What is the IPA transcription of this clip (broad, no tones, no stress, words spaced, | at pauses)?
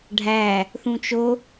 ɖʱæ | θũt͡ʃo